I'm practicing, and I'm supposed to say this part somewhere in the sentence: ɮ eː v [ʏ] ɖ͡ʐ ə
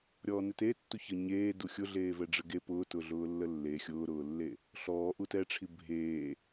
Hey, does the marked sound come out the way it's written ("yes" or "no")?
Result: no